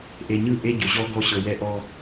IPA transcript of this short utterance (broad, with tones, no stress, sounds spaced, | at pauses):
ʔ e˨ ɲ ɯ˦˨ ʔ e˦ ɟ o˨ ʑ ɔ˦ ɡ ɔ˦ ɕ ɤ˨ w ɛ˦ ʔ ɔ˦